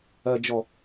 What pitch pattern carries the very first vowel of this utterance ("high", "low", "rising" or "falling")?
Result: low